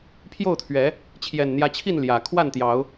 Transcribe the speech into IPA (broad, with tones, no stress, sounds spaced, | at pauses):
pʰ j o˥˨ ʊ̯ t̪ʰ ɥ ɛ˨˦ | t͡ɕʰ j ɛ˨˩ n n̪ j ä˨˦ t͡ɕʰ i˥˨ n l j ä˨˩ kʰ w a˥˨ n t̪ j ɑ˨˦ ʊ̯